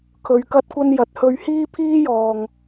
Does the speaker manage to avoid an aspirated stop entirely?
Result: no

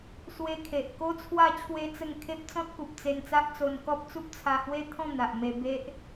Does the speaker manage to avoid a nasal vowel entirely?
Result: no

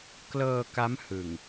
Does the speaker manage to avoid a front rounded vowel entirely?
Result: yes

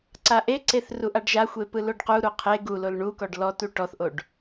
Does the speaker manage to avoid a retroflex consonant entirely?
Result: no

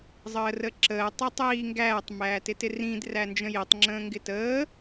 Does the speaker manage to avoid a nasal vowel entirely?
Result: no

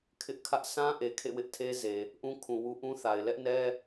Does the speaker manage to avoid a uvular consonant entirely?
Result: yes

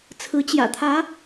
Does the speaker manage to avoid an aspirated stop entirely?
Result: no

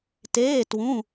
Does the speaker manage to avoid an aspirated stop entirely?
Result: yes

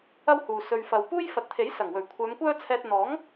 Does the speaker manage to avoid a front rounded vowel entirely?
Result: no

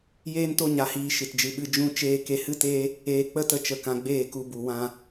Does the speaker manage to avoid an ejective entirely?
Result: yes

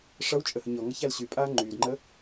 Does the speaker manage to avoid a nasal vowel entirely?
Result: yes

